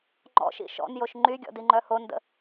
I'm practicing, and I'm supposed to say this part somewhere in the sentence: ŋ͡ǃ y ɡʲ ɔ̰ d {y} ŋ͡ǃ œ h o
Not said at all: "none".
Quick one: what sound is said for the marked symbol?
i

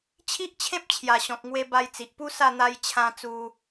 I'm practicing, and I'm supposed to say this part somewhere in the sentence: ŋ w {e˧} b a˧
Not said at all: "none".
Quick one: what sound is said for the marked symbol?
e˧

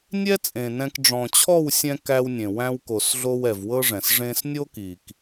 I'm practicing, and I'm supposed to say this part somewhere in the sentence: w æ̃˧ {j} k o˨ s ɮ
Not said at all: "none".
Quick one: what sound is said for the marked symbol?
w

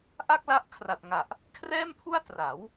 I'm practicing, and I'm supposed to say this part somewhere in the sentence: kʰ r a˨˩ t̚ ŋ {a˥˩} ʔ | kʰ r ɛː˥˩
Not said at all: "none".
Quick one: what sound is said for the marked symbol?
a˨˩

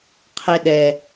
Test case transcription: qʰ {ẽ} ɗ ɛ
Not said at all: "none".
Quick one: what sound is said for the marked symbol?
e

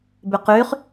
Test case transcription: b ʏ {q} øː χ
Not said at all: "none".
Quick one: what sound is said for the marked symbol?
q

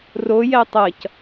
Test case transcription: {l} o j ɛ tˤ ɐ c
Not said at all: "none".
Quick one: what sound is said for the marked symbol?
r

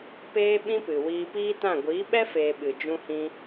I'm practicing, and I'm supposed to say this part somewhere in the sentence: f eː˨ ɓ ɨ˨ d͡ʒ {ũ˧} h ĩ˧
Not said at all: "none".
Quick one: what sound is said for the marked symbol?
ũ˧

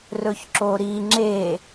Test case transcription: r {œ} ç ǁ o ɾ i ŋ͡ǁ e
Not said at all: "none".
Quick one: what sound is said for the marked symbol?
ɵ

